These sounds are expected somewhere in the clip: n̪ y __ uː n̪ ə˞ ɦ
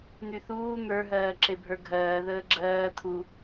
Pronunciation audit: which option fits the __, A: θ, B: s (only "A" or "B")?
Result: A